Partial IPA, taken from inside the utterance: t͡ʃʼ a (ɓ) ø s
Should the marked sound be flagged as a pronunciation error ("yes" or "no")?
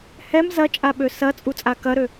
no